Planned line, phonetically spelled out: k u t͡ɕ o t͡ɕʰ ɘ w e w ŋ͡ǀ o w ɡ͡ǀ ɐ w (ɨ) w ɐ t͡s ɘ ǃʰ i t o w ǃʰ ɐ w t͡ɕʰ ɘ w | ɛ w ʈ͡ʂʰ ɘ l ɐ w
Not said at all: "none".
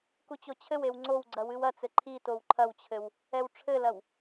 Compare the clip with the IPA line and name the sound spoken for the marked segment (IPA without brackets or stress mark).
ɨ